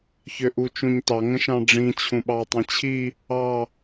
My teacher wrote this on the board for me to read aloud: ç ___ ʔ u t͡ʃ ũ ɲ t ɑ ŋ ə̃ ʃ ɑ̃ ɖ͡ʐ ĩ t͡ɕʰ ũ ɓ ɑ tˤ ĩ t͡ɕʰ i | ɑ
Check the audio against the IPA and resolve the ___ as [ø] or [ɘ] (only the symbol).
ø